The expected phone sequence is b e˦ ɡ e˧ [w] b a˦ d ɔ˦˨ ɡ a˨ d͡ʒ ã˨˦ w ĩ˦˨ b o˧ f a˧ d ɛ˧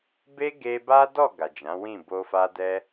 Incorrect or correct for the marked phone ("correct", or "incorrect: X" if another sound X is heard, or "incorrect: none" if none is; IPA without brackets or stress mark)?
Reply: incorrect: none